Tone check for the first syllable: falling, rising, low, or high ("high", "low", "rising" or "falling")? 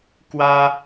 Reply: high